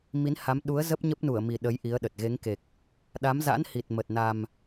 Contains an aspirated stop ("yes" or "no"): no